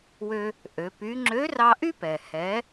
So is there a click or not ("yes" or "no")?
yes